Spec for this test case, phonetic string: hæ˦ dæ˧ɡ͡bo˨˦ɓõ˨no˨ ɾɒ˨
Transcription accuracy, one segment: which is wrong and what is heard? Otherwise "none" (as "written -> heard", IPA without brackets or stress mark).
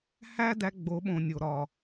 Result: n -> nʲ